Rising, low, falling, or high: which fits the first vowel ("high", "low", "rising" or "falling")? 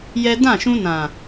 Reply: high